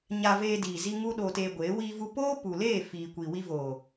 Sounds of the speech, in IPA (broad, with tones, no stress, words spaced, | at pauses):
ɲa˧veː˧ diː˨zi˧ ŋu˧ ɗoː˧teː˧ɡʷeː˨˦ wiː˧vu˧ poː˦ pu˨leː˦˨ fiː˨kʷi˨ wi˧voː˨